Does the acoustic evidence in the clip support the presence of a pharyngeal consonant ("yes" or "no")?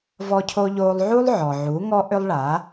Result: yes